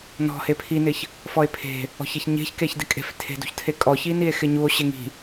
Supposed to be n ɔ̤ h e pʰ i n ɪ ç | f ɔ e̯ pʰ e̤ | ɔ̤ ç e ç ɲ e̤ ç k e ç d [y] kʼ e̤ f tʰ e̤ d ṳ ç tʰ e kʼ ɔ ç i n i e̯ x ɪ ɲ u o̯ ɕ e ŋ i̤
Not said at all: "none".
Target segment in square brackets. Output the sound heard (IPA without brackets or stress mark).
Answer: ɪ